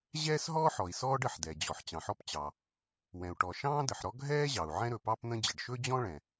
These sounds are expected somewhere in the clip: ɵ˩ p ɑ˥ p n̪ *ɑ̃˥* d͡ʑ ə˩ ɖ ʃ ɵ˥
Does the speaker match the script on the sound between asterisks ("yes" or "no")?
no